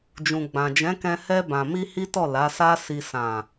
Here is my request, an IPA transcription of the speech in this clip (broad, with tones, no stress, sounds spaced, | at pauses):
d͡ʒ ũ˨ ɡ͡b ã˨ d͡ʒ ɛ̃˨˦ k ɛ̃˧ h ɛ˧ b ã˨ m i˧ h i˦ t ɔ˦˨ l a˨˦ s a˦ s i˧ s ã˨